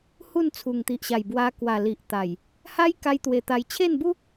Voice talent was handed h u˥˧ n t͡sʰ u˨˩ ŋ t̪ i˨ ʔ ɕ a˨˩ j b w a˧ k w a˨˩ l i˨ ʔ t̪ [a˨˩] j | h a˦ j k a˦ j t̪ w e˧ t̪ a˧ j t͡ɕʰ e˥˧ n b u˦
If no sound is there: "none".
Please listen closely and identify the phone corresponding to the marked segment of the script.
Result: a˨˩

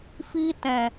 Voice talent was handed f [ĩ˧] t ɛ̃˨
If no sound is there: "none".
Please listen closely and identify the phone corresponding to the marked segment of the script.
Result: i˧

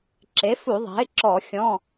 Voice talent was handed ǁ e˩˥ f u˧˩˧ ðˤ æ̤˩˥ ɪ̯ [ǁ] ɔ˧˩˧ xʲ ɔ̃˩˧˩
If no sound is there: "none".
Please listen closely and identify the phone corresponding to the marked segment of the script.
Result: ǁ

